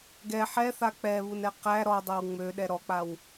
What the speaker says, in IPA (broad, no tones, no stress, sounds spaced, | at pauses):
ɡ ɛ ħ ɛ θ a k͡p ɛ β u n ɛ q æ ɾ ɔ dˤ ɛ w ŋ͡m ø ɗ ɛ ɾ ɔ k͡p a w